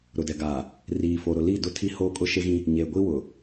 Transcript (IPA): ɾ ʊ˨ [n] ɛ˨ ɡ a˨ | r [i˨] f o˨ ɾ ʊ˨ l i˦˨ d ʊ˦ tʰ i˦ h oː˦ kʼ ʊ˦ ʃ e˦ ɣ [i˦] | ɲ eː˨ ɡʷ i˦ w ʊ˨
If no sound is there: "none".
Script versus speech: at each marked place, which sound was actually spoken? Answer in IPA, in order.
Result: d, iː˨, ĩ˦

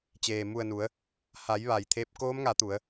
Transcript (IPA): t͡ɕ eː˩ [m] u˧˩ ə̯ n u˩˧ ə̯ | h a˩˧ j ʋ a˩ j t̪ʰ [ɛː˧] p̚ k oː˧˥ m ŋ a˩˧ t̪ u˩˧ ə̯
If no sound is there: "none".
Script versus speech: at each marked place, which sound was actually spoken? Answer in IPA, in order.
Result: m, eː˧

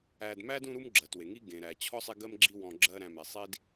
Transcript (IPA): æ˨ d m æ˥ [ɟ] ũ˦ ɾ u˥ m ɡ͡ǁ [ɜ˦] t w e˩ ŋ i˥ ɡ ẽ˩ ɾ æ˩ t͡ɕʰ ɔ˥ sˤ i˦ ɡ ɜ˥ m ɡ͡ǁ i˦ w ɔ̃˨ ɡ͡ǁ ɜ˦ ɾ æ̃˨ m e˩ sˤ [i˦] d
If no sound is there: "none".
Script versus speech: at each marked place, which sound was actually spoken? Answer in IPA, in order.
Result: d, ɜ˩, i˥

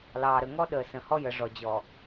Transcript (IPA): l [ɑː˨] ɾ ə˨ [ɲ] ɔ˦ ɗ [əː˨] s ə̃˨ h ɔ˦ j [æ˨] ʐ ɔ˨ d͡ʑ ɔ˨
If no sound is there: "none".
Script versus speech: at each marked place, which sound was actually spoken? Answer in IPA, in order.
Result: ɑː˨, ŋ, əː˨, ə˨

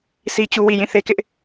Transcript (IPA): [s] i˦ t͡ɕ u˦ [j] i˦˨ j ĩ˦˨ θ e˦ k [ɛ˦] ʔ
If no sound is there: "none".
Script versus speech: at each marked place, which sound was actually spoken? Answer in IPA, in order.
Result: s, w, ɪ˦

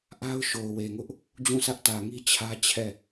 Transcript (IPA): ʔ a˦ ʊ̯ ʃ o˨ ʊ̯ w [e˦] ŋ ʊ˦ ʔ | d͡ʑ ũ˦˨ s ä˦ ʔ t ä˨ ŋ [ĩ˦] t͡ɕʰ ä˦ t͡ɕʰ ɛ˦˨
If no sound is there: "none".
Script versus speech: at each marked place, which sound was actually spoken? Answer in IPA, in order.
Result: e˨, i˦

